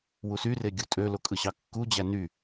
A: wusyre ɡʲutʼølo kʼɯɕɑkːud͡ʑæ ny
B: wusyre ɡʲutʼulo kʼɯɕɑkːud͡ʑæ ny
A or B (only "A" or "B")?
A